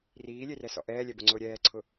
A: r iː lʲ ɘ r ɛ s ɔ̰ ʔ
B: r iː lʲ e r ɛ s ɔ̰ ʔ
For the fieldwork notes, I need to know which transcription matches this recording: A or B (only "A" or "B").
B